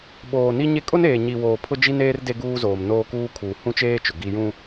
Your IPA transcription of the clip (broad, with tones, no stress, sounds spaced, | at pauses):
ɓ oː˨ n i˦ ɲ e˦ kʼ ʊ˦ n eː˨ ɲ i˨ w oː˨ pʰ ʊ˦ d͡ʒ i˦ n eː˦ r d e˦ ɡ uː˦ z oː˨ m n oː˦ k uː˦ kʰ uː˨ h ũ˦ t͡ʃ eː˦ t͡ʃ ʊ˨ ɡ i˦ j ũ˦